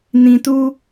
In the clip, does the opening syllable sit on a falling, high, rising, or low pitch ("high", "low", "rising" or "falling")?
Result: low